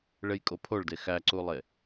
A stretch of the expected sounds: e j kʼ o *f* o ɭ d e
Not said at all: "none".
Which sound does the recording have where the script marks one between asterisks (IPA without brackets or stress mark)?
pʰ